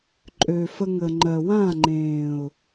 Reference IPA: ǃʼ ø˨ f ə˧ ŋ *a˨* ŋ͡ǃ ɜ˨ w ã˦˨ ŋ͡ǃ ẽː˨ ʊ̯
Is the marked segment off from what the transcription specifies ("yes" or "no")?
yes